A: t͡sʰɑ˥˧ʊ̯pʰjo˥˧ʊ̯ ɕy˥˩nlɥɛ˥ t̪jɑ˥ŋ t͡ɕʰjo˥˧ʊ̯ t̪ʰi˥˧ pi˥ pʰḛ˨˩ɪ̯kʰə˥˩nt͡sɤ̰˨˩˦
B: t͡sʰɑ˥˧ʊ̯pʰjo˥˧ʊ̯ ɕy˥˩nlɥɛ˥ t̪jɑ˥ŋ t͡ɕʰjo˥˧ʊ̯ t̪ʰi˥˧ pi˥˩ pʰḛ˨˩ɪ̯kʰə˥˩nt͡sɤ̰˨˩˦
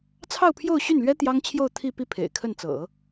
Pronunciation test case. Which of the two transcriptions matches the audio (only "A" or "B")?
B